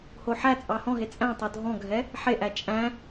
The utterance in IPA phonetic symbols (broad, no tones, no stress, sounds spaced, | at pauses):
h o ħ æ t͡sʼ ɑ h ɔ̃ ɦ e t͡sʼ æ̃ tˤ o dʱ ɔ̃ ɡʱ ɛ | ħ e ʔ æ t͡ʃʼ æ̃